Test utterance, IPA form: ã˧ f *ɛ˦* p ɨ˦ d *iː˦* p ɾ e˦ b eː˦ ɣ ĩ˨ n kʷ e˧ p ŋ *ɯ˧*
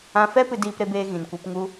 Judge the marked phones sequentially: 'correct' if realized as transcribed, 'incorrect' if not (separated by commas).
correct, correct, incorrect